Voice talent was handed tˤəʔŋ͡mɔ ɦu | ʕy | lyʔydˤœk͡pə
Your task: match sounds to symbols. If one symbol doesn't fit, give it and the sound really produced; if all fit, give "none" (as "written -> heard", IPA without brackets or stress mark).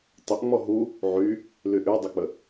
none